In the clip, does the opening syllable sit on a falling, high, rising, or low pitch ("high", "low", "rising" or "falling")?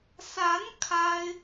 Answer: rising